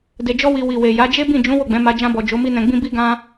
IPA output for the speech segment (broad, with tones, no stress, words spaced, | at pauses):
de˨d͡ʒɔ˧wi˨ wi˨we˨ja˨˦ d͡ʒe˦bĩ˦˨ d͡ʒũ˨˦ wo˦˨ɡ͡bɛ̃˨˦ma˧ d͡ʒã˧bɔ˨ d͡ʒo˨˦mi˦nɛ̃˧ɡ͡bĩ˦ bi˦ɡã˦